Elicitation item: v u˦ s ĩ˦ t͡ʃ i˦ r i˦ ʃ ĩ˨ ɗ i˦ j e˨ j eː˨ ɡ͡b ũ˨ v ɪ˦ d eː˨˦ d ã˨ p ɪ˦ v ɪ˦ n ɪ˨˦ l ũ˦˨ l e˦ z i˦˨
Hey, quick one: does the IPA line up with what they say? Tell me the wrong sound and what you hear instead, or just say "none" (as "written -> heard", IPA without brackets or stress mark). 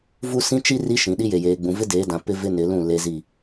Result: none